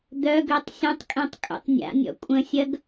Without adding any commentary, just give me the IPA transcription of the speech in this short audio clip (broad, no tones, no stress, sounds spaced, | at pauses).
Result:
d̪ œ ɡ ø tˤ sʲ ɐ̃ tˤ kʼ ẽ tˤ kʼ ṵ tˤ nʲ a̰ nʲ ɔ̰ kʷʼ ə̃ sʲ ɐ ɡ